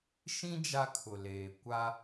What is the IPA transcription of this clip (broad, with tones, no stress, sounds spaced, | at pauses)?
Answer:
ʃ ĩ˦ d͡ʒ a˦ kʰ ʊ˨ l eː˨ kʷ a˦